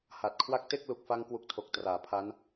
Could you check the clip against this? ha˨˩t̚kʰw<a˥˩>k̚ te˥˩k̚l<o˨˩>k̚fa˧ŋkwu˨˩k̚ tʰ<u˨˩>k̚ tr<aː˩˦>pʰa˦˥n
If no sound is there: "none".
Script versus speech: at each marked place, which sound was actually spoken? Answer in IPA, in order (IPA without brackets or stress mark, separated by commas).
a˥˩, u˨˩, o˨˩, aː˩˦